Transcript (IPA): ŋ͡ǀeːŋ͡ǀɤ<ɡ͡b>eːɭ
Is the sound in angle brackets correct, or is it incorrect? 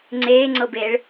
incorrect: b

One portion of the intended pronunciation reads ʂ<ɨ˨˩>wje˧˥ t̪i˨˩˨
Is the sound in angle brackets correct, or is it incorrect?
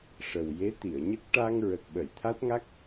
incorrect: ə˨˩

